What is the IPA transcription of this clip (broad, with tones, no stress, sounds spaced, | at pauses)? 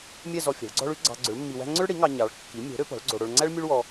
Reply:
mʲ ɛ˥˧ z ɔ˧ fʲ ɛ̤˩˥ ɭ ɡ͡ǀ ɔ̤˥ ɭ ʉ˥ ɡ͡ǀ ɑ̤˧ ɡ͡ǀ ɵ˩˥ ɭ mː i˧ w æ̤˥ ŋ͡ǀ ɵ˥ ɭ ɽ i˩˥ ŋ ɑ˧ ɲ ɑ˩˥ ɭ kː i˩˥ mʲ o̤˩˥ ɾ ø˩˥ p ɔ̤˩˥ ɭ ɡ͡ǀ o˧ ɽ o˧ ɭ ŋ͡ǀ æ˥ ɭ mʲ u˥ ɭ w ɔ˧